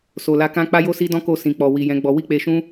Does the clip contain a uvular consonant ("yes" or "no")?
no